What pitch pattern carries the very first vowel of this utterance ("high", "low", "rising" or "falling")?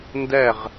falling